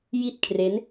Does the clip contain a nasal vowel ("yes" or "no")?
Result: no